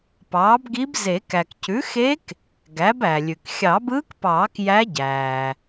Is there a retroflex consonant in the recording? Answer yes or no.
no